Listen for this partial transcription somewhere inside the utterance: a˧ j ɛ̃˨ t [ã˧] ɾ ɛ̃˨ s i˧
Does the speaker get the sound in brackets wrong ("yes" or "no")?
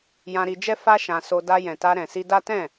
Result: yes